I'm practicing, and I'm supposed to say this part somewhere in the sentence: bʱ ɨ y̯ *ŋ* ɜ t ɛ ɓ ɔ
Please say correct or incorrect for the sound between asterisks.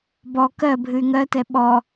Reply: correct